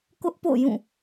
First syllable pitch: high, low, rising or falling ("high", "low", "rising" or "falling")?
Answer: high